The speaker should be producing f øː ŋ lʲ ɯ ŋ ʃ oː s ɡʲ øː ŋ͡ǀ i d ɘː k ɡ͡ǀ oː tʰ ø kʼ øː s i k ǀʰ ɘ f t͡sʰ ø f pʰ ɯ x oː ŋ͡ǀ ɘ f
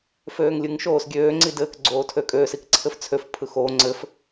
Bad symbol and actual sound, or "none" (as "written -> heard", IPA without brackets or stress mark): none